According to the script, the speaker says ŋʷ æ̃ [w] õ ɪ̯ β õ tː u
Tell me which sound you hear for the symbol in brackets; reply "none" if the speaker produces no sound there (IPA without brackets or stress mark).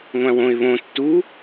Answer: w